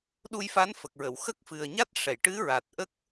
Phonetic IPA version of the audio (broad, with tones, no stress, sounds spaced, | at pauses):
ɗ u˧ j f a˧˥ n f ə˨˩ k̚ ɹ ə˨˩˨ w x ə˦˥ k̚ f ɨ˨˩ ə̯ ɲ a˦˥ t̚ ʂ ɛ˨˩˨ j ʈ ɨ˧˥ ɹ a˨˩ t̚ ʔ ə˦˥ k̚